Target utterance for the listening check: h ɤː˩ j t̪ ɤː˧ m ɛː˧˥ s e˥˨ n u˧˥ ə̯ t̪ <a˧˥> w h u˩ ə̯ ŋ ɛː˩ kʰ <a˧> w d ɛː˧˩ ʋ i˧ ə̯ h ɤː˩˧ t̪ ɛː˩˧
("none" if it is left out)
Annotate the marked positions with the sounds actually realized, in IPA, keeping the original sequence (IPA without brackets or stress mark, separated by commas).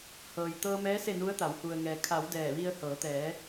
a˩˧, a˩˧